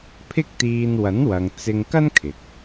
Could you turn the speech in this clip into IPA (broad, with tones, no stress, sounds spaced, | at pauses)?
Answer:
pʰ ɪ˥ k̚ t̪ iː˧ n w ɐ˨˥ n w ɐ˨ ŋ t͡s ɪ˧ ŋ k ɐ˥ n kʰ ɪ˨ k̚